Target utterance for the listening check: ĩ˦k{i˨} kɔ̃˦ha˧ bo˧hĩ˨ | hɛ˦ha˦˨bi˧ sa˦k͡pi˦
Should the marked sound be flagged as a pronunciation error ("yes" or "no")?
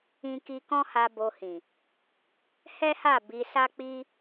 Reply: yes